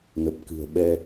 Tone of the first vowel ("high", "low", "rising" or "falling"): low